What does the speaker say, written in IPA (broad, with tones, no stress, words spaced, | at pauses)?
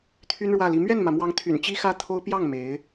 t̪ʰy˥nɻwä˥˩li˧˥ mɥɛ˥˩nmä˩mwɑ˧˥ŋ t̪ʰy̰˨˩nt͡ɕi˥xä˥t̪ʰo˥ʊ̯ pjɑ˥˩ŋ me˧˥ɪ̯